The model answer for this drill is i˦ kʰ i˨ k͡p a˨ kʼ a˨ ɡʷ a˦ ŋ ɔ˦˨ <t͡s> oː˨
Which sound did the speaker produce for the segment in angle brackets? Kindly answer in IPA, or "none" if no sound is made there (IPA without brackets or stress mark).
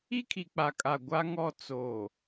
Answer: t͡s